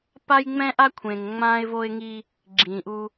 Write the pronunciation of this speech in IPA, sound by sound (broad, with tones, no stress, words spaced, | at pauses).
pa˦jŋ͡mɛ̃˦ʔa˦ kʷʰẽ˨ŋ ŋ͡mãː˦ɪ̯vo˦ɪ̯ŋi˦ | ɡ͡ǁĩː˨ʔu˦